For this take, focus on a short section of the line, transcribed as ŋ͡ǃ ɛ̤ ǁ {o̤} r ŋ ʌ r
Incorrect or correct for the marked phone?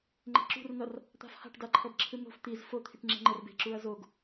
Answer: incorrect: ṳ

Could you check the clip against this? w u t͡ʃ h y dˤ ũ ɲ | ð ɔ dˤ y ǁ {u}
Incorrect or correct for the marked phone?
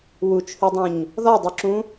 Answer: incorrect: ũ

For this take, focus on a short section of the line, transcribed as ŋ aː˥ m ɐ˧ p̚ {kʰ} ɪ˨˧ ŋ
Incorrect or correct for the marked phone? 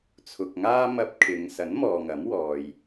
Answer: correct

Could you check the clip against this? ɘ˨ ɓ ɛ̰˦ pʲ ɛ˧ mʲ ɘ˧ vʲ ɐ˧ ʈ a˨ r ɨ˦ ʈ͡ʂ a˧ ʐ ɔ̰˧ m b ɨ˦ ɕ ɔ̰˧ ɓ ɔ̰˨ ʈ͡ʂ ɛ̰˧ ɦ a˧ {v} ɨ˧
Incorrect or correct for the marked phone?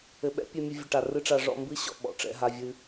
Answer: incorrect: vʲ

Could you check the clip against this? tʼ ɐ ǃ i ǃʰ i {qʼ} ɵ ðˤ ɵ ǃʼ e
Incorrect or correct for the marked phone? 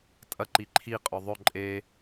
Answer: correct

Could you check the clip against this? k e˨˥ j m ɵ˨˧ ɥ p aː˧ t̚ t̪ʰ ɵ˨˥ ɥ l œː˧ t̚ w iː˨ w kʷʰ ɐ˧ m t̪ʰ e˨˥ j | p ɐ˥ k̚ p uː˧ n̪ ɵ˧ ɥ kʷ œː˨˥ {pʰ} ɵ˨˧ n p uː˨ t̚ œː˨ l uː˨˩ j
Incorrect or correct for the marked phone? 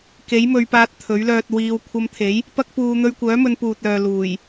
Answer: incorrect: m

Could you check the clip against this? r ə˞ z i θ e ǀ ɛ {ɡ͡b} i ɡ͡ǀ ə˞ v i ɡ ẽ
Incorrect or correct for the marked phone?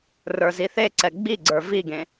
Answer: correct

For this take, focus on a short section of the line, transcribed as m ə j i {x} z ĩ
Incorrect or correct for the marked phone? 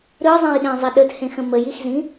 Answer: correct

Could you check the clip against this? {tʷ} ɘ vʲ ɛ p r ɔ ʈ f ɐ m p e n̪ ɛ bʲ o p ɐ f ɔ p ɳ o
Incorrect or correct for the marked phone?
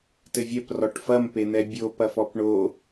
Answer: incorrect: t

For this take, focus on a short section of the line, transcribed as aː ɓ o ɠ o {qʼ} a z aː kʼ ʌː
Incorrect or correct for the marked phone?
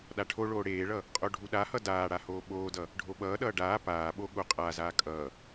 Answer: correct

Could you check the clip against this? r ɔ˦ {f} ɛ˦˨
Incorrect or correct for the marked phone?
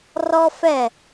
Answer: correct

